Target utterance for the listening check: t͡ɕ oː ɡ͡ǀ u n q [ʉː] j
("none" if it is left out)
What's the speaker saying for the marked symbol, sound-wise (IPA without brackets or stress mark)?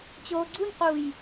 uː